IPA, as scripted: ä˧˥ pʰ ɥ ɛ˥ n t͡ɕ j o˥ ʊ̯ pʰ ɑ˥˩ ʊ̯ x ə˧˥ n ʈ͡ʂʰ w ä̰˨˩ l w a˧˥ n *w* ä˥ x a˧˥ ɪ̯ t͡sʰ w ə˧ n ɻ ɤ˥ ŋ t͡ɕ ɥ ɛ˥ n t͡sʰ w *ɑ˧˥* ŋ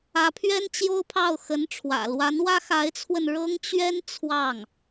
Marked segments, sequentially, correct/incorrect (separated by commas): correct, incorrect